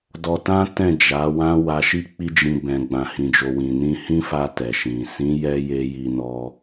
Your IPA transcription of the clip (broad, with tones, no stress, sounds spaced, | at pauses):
d ɔ˧ t ã˦ t ɛ̃˦˨ d͡ʒ a˨˦ w ã˦ w a˧ ʃ i˦ k͡p i˦ d͡ʒ ĩ˧ b ɛ̃˨ ɡ͡b ã˨ h ĩ˨ d͡ʒ o˨ w ĩ˨ n ĩ˧ h ĩ˦ f a˧ t ɛ˨ ʃ ĩ˨ s ĩ˨˦ j ɛ˧ j e˦ j i˧ n ɔ˧